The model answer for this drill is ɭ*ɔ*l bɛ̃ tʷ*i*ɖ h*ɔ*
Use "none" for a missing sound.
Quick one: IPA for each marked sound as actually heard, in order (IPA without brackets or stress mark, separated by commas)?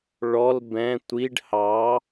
ɔ, i, ɑ